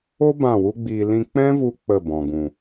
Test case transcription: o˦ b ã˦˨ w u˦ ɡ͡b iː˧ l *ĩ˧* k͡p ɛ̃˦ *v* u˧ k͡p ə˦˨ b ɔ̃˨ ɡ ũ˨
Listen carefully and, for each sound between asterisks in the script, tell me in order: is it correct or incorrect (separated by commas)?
correct, correct